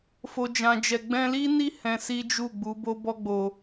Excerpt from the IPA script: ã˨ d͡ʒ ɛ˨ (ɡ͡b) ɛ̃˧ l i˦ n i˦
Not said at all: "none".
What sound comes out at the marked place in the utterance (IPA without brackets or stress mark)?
ɡ͡b